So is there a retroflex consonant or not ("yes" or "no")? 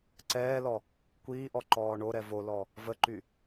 yes